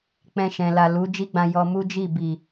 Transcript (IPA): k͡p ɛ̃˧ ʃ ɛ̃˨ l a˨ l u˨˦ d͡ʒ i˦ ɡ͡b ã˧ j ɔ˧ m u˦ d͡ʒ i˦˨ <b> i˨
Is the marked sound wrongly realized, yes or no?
no